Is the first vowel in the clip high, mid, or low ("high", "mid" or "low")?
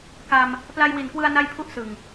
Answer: low